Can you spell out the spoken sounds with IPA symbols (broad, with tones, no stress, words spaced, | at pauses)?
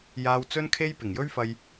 jaː˨wt͡sɵ˧nkʰe˧j pɪ˨˩ŋjɵ˥ɥfɐ˧j